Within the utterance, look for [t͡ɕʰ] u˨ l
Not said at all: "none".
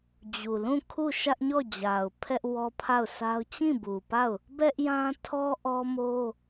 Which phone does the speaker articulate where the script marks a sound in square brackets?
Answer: d͡ʑ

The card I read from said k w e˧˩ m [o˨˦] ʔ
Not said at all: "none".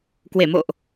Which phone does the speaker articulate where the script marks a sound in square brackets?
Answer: o̰˧˨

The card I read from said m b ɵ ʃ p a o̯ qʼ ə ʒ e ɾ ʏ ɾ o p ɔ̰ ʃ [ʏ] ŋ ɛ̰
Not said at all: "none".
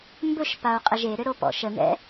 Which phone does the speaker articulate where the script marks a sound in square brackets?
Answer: ə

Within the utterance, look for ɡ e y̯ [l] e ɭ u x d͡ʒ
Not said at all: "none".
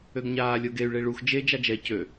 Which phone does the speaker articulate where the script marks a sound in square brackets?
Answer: ɭ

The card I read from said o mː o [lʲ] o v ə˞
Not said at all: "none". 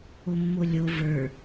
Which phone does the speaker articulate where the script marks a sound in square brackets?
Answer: lʲ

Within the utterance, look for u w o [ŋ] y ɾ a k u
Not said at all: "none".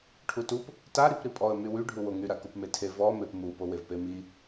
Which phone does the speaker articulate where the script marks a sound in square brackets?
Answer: ŋ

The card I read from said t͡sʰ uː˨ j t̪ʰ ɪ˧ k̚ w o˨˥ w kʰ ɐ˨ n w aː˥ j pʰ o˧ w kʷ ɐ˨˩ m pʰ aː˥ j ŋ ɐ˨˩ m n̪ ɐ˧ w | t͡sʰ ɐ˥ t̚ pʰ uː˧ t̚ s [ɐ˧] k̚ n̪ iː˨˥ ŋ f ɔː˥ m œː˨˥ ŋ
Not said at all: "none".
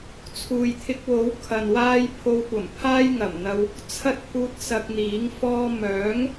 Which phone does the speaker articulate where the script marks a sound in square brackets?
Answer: ɐ˧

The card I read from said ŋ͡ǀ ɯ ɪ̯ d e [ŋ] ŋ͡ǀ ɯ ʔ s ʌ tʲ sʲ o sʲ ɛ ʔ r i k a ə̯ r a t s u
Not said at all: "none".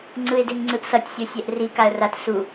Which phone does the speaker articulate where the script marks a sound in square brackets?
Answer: ŋ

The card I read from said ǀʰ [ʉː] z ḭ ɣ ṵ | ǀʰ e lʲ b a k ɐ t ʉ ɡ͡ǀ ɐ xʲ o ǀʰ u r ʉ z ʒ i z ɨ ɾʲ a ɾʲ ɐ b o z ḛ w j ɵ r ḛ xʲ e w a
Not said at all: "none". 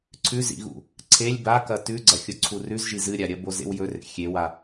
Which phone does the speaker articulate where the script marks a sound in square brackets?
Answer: ʉ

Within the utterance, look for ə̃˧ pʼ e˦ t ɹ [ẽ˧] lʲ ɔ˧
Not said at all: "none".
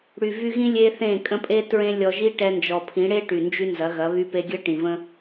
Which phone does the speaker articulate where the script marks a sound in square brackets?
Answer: ẽ˦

